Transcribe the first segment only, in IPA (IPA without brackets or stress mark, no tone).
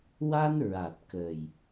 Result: w